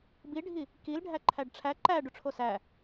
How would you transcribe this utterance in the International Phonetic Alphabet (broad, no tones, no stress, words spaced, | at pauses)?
biɖʱi | kilɖʱæ ǃʰæɖʈ͡ʂʰæ ǃæ ɖuʈ͡ʂʰosæ